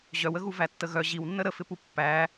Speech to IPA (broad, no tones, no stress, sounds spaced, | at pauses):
ʑ œ w ə ɣ u v æ tː ə ɣ œ ʑ i w nː ə ɾ ə f ɪ p u pː æ